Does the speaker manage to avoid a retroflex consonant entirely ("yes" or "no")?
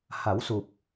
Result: yes